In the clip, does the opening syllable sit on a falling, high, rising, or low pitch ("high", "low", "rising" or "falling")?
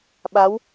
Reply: rising